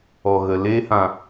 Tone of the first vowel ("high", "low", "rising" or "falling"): low